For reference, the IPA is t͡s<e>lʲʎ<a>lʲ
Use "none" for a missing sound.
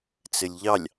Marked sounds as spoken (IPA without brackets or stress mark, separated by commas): ɘ, ɑ